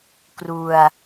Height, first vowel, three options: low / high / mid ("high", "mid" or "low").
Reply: high